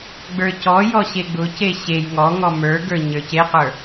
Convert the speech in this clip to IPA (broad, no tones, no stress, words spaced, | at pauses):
ɡ͡bə˞cɔjɔ ɕeɡ͡bʊce ɕej ŋɔŋɔ mə˞ɡə˞ ɲə˞ceqə˞